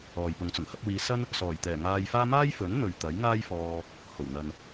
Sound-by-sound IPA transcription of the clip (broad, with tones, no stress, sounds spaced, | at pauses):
ɔː˨ j p ʊ˨˧ ŋ t͡s ʊ˨˩ ŋ h ɐ˨˥ p̚ w iː˨˧ s ɐ˥ n | s ɔː˨˩ j t̪ ɛː˨˩ ŋ aː˧ j f aː˥ m aː˥ j f ɵ˨˥ n n̪ ɵ˨ ɥ t̪ ɐ˨˥ j ŋ aː˥ j f ɔː˧ | h o˨˩ w n̪ ɐ˨ n